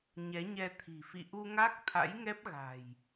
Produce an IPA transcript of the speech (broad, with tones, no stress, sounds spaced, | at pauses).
ɲ ɛ˨˦ ɲ ɛ˧ t̪ʰ i̤˨˩ f ḭ˧˨ ʔ u˧ ŋ a˦˥ k̚ t̪ʰ a̰˧˥ j ŋ ɛ˦˥ p̚ ɣ a̤˨˩ j